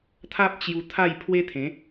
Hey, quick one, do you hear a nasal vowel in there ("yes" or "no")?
yes